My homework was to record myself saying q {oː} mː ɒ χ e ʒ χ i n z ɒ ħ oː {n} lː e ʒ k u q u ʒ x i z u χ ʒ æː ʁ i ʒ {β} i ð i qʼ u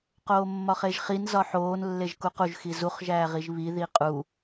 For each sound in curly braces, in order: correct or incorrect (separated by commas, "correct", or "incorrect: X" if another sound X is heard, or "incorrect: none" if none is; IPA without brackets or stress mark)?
correct, correct, correct